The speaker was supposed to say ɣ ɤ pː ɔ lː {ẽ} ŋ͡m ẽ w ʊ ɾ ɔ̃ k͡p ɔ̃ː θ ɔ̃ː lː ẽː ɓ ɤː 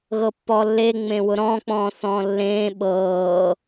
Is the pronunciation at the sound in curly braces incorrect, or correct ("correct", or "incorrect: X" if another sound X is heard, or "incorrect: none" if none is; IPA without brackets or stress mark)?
incorrect: e